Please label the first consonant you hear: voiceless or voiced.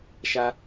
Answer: voiceless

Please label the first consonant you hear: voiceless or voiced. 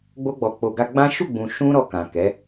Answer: voiced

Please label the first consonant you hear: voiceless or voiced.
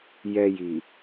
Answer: voiced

